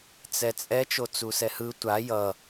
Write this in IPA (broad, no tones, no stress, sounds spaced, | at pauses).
t͡s ɛ t͡sʼ ɛ t͡ʃ o t͡s u s ɛ h ɯ tʷ a j ʌ